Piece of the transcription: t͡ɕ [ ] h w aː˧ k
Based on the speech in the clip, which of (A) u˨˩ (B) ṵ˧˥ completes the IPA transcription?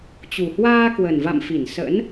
A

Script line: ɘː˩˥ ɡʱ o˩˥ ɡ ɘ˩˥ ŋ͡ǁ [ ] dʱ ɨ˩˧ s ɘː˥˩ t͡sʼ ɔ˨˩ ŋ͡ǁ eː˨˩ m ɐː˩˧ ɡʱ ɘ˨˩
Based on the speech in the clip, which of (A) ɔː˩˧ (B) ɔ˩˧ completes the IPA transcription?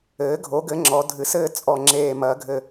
B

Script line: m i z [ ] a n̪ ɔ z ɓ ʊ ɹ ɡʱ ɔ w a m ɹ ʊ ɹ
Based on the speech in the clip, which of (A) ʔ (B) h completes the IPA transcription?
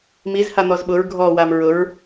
B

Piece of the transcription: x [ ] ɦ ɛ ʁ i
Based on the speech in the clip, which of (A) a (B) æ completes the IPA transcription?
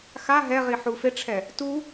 A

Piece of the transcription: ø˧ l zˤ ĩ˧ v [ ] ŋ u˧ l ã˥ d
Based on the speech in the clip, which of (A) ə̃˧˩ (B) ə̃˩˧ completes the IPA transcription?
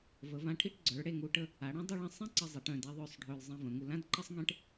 B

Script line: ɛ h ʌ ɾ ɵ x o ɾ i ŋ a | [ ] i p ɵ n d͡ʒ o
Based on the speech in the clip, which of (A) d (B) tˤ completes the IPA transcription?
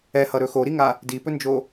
A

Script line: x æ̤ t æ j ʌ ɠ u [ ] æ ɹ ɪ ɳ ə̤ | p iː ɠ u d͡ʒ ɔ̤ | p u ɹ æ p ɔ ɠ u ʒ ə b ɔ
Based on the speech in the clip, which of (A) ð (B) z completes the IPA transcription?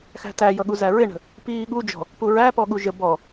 B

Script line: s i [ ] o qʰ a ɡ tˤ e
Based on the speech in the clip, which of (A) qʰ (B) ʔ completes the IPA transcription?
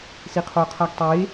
A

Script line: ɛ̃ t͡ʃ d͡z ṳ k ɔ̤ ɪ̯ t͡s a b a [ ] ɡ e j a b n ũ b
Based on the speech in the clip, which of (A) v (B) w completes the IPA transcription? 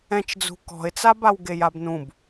B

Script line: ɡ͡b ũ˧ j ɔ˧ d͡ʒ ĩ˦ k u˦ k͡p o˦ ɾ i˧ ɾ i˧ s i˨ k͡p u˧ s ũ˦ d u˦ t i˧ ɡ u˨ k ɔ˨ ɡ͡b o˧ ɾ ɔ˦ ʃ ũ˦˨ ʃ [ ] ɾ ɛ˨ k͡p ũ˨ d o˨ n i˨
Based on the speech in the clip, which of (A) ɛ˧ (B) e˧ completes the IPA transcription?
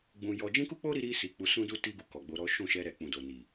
A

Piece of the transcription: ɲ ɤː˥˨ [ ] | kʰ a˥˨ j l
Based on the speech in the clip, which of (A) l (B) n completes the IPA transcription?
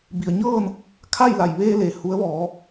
B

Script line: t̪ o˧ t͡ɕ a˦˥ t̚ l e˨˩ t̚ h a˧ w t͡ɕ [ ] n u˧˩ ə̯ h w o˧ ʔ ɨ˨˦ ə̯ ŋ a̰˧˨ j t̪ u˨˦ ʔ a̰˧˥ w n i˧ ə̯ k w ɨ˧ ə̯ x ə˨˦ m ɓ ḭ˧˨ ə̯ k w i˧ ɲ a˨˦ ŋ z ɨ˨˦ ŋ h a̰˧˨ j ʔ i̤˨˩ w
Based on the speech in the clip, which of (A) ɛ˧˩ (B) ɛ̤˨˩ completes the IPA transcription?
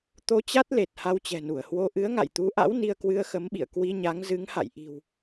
B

